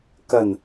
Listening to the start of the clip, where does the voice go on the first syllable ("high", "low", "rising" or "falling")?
low